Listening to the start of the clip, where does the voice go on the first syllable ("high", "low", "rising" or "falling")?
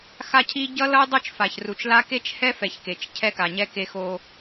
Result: high